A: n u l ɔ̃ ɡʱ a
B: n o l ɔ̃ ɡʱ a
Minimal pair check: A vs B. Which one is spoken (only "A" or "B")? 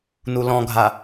A